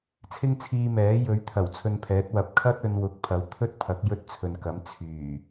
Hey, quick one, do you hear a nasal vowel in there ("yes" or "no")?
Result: no